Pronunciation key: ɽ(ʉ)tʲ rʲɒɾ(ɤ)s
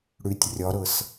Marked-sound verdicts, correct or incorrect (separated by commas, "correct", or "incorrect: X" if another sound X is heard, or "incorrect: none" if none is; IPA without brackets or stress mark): correct, correct